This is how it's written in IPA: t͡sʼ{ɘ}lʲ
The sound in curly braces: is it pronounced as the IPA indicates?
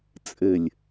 yes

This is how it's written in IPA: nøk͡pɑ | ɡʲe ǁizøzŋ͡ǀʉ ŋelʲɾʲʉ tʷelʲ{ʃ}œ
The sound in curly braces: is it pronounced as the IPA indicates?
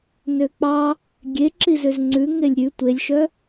yes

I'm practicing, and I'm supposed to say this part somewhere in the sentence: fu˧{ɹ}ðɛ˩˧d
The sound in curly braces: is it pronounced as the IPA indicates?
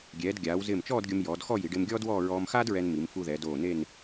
no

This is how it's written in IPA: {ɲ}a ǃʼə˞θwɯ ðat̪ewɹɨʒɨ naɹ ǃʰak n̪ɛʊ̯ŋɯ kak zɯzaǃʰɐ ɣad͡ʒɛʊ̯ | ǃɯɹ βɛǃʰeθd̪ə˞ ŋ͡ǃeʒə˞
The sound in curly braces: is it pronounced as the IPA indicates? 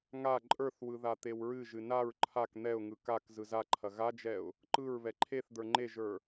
no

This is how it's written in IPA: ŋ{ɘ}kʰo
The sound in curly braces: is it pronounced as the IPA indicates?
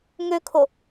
no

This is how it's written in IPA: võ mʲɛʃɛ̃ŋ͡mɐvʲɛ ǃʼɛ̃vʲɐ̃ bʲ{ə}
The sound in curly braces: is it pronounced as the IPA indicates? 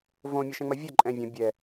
no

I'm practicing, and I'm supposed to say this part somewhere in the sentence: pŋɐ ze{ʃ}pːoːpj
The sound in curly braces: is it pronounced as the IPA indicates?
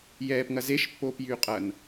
yes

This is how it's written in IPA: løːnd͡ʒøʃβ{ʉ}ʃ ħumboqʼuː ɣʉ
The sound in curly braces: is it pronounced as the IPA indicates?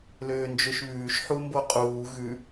no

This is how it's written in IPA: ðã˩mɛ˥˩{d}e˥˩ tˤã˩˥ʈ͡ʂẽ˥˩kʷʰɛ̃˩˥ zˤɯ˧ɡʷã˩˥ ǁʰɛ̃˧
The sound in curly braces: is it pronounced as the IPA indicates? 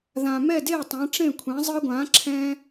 yes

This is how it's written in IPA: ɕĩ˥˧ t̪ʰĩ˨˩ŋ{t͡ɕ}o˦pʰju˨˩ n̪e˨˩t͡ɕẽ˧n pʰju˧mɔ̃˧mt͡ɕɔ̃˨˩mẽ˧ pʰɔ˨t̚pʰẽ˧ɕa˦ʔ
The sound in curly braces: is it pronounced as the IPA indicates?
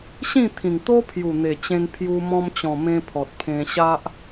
no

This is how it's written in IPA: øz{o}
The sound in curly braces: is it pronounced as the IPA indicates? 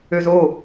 yes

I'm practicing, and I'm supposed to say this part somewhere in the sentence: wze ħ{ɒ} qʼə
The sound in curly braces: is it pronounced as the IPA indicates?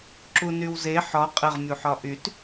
yes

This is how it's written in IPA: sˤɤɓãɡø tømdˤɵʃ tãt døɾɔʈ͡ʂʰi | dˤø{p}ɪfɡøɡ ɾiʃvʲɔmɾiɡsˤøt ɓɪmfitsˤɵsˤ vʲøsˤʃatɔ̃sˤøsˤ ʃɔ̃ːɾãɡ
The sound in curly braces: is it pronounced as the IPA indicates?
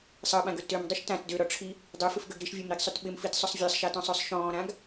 no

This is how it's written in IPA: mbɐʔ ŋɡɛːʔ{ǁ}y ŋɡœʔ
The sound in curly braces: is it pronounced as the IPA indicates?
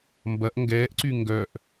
no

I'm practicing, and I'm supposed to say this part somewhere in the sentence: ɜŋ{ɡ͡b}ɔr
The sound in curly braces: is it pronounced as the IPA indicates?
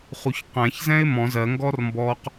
no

